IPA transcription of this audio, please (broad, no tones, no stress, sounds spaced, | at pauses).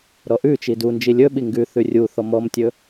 ɾ ɔ ʔ ʉ t͡ʃ i d u n d͡ʒ i lʲ ɵ ɓ i ŋ ɡ ʉ θ ʉ rʲ u θ ɔ m ɔ m tʲ ɵ